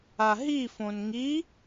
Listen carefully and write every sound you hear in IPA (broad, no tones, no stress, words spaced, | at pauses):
aɦifõn ŋi